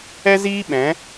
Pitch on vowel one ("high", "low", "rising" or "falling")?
high